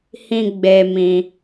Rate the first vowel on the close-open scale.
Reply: close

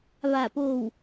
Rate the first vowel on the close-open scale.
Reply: open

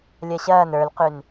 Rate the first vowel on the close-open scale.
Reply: open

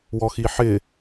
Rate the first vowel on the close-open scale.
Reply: mid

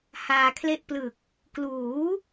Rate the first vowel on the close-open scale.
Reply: open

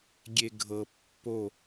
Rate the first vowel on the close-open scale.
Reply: mid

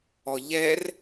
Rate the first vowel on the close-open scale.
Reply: mid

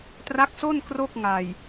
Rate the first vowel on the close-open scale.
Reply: open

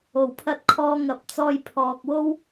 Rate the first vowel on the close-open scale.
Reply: mid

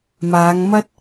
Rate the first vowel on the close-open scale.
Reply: open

